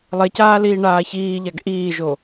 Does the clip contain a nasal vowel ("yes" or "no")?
no